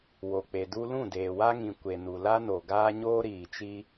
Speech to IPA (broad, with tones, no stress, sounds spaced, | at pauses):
w o˨ k͡p e˨ d u˦ l ũ˦˨ d eː˨ w a˦ ŋ ĩ˨ kʷ e˨ n u˨ l a˦ n o˨ ɡ aː˦ ɲ oː˦ ɾ iː˨ t͡ʃ i˦